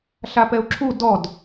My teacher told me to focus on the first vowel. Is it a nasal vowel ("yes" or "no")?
no